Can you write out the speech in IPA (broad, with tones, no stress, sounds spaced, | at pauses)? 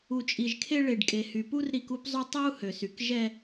u˨ t͡ʃʼ i˨ ʒ kʰ e˦ ɭ e˨ ɖ kʼ e˨ h y˨ p u˦ r ɾ i˦ k u˦ p zˤ y˦ tˤ ø˦ u̯ h ø˨ s y˨ k ʒ ɛ˦